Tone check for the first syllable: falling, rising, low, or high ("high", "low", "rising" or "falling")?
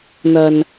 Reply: low